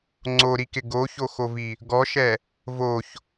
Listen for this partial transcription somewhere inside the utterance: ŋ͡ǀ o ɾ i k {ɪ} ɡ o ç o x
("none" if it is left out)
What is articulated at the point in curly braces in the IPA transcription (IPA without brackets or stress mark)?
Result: ɪ